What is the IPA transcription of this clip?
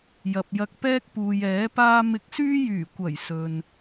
j ɐ˨ p̚ j ɐ˧ k̚ p ɛː˥ k̚ p uː˨ j ɛː˨˥ p aː˥ m ɪ˧ k̚ s yː˥ j yː˨˩ kʷ ɐ˨˩ j s ɵ˨ n

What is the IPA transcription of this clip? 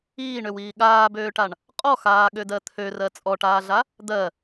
iː ɳ ø w iː ɠ aː b øː ʈ a ɳ | qʼ ɔ x aː ɠ ø d ɜ t̪ʰ ø r ɜ t͡sʼ ɔ ʈ aː ɮ a | d̪ ɜ

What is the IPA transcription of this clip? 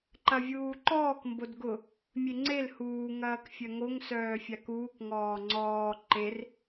ǃ ɐ vʲ uː ǃ ɔː k m b o d ɡ ʊ | mʲ e ŋ͡ǀ e l h uː ŋ ɐː k fʲ œ ŋ o ŋ s œː fʲ a k uː k ŋ ɔː ŋ͡ǀ ɔː ǃ e r

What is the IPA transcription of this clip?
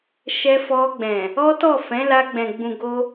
ʃ ɛ˧ f ɔ˧ ɡ͡b ɛ̃˨ | ɔ˦ t ɔ˦˨ f ɛ̃˨˦ l a˧ ɡ͡b ɛ̃˨ ɡ͡b ũ˨ ɡ o˧

